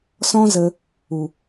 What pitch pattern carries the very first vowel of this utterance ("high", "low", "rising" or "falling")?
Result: high